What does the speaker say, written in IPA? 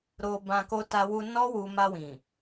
ɾ o˧ b ã˧ k o˧ t a˧ w u˧ n ɔ˦ w u˧ m a˧ w ĩ˨

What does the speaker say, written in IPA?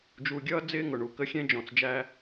d͡ʒ u˨ ɡʲ ʌː˦ d͡z ɪː˦ ŋ ʊ˨ ɳ u˨ k ə˦ xʲ ɛ̃˦ d͡ʒ ɔ̃˨ t͡s d͡ʒ æ˦

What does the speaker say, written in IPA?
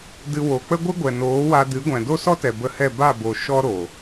d ɨ˧ w o˨ k͡p ə˦ ɡʷ ɨ˦ ɡʷ ɛ˨ n oː˨˦ w a˧ d ɨ˨˦ ɡʷ ɛ̃˨ d o˦ s ɔ˦ t ɛ˨ b ə˧ h ɛ˦˨ b a˦˨ b o˨ ʃ ɔ˦ ɾ o˨

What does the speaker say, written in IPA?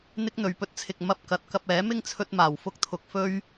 n̪ ɪ˥ k̚ n̪ ɵ˨ ɥ p ɵ˥ t̚ t͡sʰ ɪ˧ k̚ m ɐ˧ p̚ k ɐ˨ t̚ k ɐ˧ p̚ ɛː˨˥ m ɪ˥ ŋ t͡sʰ ɵ˧ t̚ m aː˨˩ w f ʊ˧ k̚ t̪ʰ ʊ˨ k̚ f ɵ˥ ɥ

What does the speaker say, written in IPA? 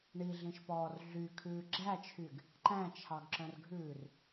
ɳ i ɮ ĩ ʃ p ɔː r ɮ y kʰ ʉː ɡ͡ǁ æ t͡ʃʰ y ɡ | ǃ æ̃ t͡ʃʰ ɑ ɡ ǁ œ̃ r ɡʱ ʉː r

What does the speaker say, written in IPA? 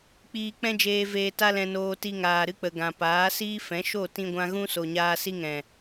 k͡p iː˧ k͡p ɛ̃˦ d͡ʒ eː˧ v eː˧ t a˦ l ɛ̃˧ n oː˧ t i˧ ŋ aː˨ ɾ ɨ˦ k͡p ə˨ ɡ ã˨ p aː˨˦ s iː˦ f ɛ̃˨˦ ʃ o˦˨ t ĩ˧ ɡʷ ã˧ ɣ ũ˦ s o˨ ɲ aː˧ s i˦ ŋ ɛ̃˨

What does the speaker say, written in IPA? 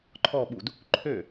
ǃʰ ɔ ɓ u d | ǃʰ ø

